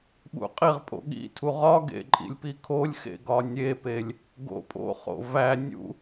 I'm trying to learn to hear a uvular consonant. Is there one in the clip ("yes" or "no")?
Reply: yes